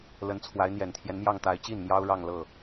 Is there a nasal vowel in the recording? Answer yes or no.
no